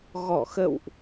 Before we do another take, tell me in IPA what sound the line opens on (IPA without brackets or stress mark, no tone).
ɣ